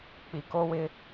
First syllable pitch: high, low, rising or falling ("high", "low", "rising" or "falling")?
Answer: low